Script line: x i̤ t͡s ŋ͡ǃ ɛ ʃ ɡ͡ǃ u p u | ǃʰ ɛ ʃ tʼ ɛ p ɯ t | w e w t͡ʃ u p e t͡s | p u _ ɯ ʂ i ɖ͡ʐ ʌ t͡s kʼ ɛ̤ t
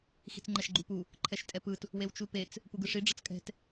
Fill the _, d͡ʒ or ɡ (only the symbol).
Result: ɡ